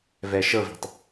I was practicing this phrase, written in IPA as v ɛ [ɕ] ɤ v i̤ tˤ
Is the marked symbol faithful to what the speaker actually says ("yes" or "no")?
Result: no